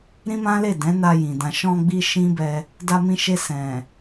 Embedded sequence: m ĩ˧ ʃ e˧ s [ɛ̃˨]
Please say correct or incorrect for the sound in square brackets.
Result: correct